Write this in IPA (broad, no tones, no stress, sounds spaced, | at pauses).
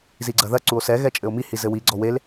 z i ɡ͡ǀ ɐ ð ɐ ǀ u o̯ s ɛ ɣ ɛ t͡ʃʼ ɘ o̯ m i h i z ɘ w i ɡ͡ǀ ɔ w e l